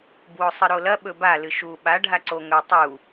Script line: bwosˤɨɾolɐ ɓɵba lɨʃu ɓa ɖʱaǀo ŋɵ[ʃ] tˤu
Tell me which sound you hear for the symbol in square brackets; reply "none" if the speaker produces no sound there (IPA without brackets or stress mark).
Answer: none